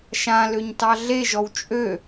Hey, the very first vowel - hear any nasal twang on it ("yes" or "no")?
yes